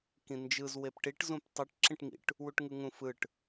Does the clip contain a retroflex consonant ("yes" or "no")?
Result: yes